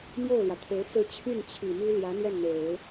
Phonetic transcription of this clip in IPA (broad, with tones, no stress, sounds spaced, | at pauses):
m j o˥˩ ʊ̯ l j ä˩ t̪ʰ e˧˥ ɪ̯ t͡s ɹ̩˧˥ t͡ɕʰ y˥˩ n t͡ɕʰ i˨˩ m y˥ l j ä˧˥ n̪ j ɛ˥˩ n n̪ e˨˩˦ ɪ̯